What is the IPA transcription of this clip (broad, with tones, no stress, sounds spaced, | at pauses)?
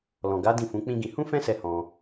l ɔ̃˨ ɡ a˨˦ d ĩ˦˨ f ũ˨˦ k͡p ĩ˦ ɡ ĩ˧ h ũ˦ f ɛ̃˦ s ɛ˧ h ɔ̃˧